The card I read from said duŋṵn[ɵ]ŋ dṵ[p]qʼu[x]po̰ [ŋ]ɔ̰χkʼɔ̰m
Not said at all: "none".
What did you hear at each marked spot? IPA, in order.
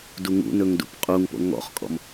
ɵ, p, ŋ, ŋ

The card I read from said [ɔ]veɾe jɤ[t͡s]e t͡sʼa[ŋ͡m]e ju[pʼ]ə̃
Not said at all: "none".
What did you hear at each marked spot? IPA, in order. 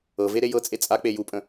ɤ, t͡sʼ, k͡p, pʼ

